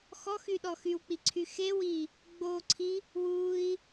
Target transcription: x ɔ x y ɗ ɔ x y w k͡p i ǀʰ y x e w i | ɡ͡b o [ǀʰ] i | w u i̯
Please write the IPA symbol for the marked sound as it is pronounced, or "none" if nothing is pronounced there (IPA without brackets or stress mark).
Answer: ǀʰ